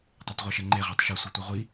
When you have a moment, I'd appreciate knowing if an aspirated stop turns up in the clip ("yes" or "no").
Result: no